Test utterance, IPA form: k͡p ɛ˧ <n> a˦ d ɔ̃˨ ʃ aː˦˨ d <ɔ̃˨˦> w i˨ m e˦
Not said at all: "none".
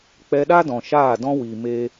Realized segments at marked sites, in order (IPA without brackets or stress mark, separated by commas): ɗ, ɔ̃˦